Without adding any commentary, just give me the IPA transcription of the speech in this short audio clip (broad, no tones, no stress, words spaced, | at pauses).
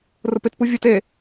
rʊpɪt puvʲut e